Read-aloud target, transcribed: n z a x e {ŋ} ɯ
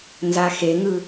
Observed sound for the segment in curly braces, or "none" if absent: ŋ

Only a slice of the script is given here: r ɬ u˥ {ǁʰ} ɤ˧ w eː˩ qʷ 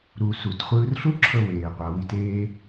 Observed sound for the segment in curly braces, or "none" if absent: ǁʰ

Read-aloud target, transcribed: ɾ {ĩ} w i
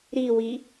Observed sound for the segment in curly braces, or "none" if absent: i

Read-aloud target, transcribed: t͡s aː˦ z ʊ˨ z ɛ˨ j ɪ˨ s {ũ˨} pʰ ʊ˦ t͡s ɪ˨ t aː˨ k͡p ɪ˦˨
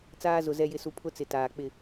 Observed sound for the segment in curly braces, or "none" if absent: u˨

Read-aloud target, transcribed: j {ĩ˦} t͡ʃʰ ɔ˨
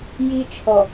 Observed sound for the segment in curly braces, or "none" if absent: i˦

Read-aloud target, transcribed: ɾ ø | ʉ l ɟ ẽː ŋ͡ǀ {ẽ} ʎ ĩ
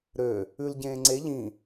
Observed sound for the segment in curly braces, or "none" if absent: e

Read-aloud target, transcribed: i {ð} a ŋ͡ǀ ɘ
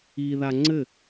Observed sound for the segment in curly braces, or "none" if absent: ð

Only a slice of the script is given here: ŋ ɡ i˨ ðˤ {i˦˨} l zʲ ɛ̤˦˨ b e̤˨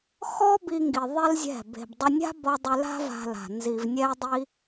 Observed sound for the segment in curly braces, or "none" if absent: i˦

